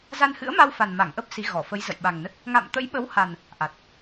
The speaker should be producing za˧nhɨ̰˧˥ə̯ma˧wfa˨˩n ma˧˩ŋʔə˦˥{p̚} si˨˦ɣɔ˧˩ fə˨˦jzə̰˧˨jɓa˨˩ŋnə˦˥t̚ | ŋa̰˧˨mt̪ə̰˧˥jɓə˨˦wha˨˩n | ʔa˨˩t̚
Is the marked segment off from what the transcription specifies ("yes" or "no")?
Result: no